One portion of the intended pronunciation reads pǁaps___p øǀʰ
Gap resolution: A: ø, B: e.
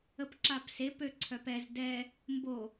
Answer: B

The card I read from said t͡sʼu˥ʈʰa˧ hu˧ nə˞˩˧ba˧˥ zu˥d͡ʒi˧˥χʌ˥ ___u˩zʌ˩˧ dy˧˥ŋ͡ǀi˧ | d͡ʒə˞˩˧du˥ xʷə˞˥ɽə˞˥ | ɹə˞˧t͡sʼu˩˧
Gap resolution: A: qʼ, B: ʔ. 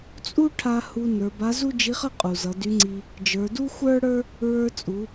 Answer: A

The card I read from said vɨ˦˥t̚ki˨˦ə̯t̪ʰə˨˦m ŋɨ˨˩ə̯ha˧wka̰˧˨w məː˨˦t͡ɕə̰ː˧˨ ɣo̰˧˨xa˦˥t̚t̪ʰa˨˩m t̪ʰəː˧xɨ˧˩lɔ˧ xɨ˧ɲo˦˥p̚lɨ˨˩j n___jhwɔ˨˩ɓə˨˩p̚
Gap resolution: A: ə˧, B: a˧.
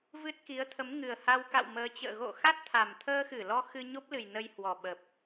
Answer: A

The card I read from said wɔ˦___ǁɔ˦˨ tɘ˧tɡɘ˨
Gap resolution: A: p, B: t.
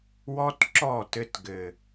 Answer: B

